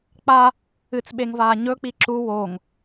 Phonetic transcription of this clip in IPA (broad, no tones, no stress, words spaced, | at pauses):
k͡pa | ɨt͡sɓeŋvaː ɲɵk͡pi ǁu woŋ